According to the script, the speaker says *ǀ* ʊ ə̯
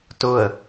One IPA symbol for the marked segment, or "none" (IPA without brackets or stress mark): t